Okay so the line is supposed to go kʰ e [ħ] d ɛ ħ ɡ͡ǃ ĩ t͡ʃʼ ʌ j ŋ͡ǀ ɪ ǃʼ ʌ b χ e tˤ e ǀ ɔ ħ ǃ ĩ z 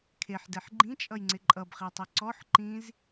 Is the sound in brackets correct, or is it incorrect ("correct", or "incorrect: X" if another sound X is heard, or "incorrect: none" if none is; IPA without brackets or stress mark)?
correct